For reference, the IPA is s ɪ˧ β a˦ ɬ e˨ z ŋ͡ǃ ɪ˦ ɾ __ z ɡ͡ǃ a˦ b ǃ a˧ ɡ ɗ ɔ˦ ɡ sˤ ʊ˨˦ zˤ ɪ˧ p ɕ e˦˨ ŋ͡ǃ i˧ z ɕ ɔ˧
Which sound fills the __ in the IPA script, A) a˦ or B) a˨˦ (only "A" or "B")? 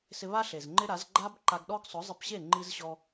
B